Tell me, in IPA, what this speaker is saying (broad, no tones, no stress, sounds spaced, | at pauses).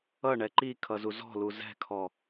ʌ ɳ ɛ ǃ i kʰ ʌ z u z ɔ̤ l u z ɛ̤ kʰ ɔ